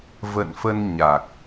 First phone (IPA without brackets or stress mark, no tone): v